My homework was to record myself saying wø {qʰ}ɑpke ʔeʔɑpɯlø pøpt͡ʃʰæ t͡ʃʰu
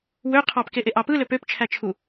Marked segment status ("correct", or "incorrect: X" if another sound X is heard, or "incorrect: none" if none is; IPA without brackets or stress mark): correct